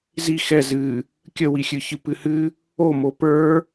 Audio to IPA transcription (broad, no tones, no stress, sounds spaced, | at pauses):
z i x ɛ z ɨ | kʲ ə w i xʲ ɨ ç ɨ p ɨ h ɨ | o m o p ə˞